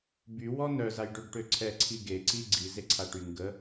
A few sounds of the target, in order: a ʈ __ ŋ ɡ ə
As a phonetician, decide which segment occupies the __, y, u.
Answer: y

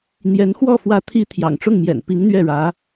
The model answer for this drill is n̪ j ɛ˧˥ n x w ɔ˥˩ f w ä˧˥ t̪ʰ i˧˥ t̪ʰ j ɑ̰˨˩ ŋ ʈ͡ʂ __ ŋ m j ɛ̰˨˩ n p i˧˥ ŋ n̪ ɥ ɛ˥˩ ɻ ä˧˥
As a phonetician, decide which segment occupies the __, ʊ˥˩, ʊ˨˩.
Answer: ʊ˥˩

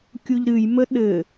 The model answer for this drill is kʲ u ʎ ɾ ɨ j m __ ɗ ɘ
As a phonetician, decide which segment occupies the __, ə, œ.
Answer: ə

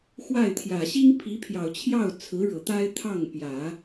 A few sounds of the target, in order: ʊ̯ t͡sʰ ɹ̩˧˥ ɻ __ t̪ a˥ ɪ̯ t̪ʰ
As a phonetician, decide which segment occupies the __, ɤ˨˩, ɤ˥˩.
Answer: ɤ˨˩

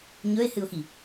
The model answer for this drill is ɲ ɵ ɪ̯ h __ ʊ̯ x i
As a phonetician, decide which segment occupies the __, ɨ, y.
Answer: ɨ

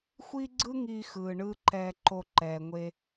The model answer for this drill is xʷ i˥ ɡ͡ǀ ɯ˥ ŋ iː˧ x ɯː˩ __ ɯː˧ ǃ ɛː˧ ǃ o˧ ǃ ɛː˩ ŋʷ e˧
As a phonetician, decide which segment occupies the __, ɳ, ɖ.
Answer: ɳ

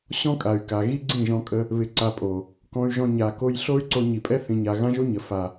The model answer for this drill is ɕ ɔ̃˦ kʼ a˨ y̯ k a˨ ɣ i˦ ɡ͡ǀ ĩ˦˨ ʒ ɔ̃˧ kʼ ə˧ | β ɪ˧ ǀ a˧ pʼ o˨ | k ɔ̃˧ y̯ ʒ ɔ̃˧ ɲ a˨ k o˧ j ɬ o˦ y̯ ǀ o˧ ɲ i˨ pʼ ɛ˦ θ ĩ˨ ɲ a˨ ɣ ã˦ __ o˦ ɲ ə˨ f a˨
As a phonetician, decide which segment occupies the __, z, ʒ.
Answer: ʒ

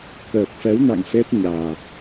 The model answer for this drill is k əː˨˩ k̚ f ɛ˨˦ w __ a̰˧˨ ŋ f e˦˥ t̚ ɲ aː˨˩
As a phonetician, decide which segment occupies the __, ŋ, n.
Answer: n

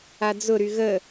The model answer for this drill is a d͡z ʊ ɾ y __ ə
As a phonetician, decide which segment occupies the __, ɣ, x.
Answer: ɣ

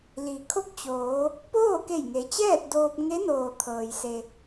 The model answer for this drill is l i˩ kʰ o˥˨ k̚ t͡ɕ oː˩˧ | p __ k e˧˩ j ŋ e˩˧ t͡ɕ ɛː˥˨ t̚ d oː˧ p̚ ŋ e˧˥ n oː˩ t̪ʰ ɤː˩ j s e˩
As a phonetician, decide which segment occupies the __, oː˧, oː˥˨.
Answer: oː˥˨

